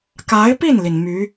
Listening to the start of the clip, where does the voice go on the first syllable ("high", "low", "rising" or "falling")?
rising